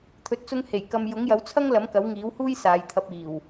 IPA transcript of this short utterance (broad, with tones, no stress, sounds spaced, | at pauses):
t̪ʰ ɵ˨ t̚ t͡s ʊ˧ ŋ h e˨˩ j k ɐ˧ m j ʊ˨˥ ŋ j ɐ˨˥ w t͡sʰ ɐ˥ ŋ l ɐ˨˥ m k ɐ˨˥ w ŋ iː˨˥ w h uː˥ j s aː˨˧ j t̪ʰ ɐ˧ p̚ iː˨˩ w